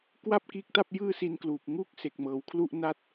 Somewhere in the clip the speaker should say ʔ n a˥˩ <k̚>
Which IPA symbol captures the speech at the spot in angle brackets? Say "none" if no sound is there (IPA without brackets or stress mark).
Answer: t̚